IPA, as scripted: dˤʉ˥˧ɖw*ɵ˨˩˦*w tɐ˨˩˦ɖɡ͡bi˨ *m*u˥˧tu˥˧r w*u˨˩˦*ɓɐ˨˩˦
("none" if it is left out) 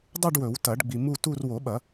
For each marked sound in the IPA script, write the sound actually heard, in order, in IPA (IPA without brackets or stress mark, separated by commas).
ɵ˨˩˦, m, o˨˩˦